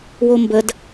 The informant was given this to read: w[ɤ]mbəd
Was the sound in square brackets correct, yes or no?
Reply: no